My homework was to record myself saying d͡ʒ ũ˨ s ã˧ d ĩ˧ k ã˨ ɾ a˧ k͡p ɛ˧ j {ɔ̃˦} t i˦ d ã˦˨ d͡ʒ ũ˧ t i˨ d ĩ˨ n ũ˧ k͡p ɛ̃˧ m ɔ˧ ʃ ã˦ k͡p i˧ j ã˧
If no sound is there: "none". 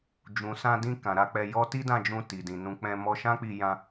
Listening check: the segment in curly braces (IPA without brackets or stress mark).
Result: ɔ˦